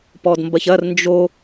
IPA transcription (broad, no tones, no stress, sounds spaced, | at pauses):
p ɔ d m b ɐ ç ɐ r n d͡ʒ o